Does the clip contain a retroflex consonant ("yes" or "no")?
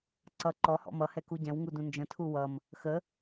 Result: no